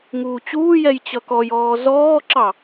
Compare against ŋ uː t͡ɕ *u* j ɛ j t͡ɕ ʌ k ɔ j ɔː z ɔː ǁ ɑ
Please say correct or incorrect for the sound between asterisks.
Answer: incorrect